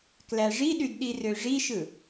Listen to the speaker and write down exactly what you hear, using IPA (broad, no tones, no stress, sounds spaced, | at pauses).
k l æ ʐ i ɗ y d ɗ i r ø ʐ i ʃ ɯ